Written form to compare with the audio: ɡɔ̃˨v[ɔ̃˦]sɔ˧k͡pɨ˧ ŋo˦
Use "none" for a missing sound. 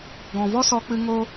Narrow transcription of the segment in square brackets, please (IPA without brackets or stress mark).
ɔ˦